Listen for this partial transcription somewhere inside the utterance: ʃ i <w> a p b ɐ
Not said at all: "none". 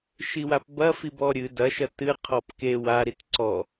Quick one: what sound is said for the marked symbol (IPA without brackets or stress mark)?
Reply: w